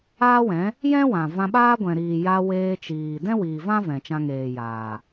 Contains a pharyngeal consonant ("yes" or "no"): no